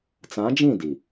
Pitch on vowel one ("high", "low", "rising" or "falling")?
rising